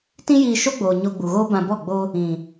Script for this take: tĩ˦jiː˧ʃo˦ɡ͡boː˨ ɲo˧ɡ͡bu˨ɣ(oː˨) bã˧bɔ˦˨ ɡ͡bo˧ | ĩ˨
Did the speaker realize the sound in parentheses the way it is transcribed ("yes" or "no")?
no